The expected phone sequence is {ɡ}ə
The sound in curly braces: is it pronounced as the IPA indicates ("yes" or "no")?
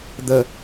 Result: no